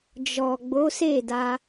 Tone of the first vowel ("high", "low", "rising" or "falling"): low